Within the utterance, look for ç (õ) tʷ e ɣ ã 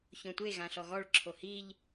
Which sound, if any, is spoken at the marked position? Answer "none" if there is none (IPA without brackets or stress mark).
õ